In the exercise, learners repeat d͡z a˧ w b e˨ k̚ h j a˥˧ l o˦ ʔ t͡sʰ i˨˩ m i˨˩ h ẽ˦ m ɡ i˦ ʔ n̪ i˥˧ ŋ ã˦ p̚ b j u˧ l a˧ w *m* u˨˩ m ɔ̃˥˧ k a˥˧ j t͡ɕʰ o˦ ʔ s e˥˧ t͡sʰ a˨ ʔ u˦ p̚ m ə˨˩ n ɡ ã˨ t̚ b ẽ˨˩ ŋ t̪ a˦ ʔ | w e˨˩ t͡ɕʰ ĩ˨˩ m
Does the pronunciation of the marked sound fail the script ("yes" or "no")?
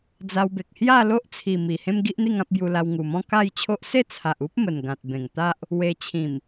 yes